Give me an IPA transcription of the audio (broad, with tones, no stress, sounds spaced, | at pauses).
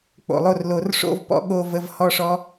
k͡p o̰˨˩ lˠ o˥˩ r l o˧˩˧ r ʂ o̰˥˧ v p ɔ̰˦˥ ɠ o˥˧ v ə˧˥˧ v h ɔ˥˧ ʂ ɔ˦˥